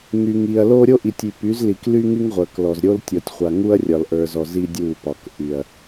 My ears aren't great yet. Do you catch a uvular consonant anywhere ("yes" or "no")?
yes